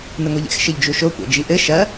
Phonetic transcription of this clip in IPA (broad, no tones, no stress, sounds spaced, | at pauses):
n ɨ ŋʷ e ʎ ɛ̰ x ʃ ɘ ʎ d͡ʒ u ʃ o kʷ ɛ̰ d͡ʒ i ʔ ɘ ʃ ɐ